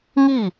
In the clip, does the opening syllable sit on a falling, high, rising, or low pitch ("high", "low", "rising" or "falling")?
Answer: falling